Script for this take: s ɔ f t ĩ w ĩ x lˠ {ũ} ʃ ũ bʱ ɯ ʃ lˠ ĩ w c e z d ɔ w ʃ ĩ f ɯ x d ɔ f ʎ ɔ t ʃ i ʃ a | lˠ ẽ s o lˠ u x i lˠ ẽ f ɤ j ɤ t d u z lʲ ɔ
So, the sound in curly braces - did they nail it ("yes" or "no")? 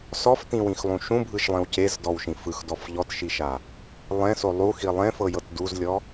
yes